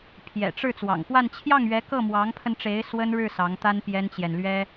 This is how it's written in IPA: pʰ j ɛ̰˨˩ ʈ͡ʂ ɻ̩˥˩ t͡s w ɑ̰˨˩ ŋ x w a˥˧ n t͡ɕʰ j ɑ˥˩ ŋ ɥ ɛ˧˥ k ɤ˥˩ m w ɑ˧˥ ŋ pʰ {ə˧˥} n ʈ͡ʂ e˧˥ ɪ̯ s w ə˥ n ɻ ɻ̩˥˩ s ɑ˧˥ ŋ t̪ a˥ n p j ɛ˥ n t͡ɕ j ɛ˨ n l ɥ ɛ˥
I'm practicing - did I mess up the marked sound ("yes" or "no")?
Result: yes